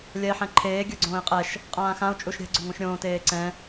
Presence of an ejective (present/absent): present